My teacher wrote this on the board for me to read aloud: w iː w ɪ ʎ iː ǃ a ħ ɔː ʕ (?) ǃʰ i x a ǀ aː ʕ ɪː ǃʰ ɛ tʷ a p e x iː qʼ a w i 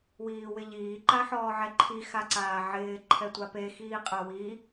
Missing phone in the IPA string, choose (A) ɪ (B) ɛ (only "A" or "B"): B